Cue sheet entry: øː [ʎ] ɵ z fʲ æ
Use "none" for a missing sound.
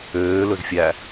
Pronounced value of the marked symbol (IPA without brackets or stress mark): l